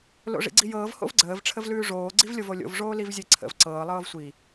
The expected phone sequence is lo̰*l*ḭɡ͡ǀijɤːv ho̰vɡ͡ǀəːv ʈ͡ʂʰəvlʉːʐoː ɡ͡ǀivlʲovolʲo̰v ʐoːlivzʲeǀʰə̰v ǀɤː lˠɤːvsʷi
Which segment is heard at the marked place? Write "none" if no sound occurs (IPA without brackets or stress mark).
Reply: ʐ